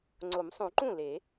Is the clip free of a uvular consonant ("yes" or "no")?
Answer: yes